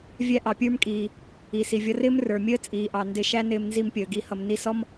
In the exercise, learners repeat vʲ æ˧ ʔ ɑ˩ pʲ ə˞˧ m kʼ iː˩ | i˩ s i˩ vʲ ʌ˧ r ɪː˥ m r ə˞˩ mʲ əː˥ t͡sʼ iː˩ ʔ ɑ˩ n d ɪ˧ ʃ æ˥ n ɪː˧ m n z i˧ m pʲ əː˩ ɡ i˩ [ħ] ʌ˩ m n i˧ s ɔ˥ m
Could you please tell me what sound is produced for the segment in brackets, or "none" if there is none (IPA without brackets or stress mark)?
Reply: h